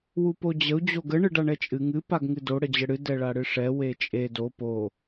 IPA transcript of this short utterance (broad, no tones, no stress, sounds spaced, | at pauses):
w u p o d͡ʑ ə u̯ d͡ʑ o ɡ ə ɳ ɨ ɖ a ɳ ɛ t͡ʃʼ ɨ ŋ ɨ p a ɡ ŋ ɨ d o ɽ ə d͡ʑ ə ɽ ɨ d ɛ ɭ a ɽ ɨ ʂ ɛ w e t͡ʃʼ e d o p o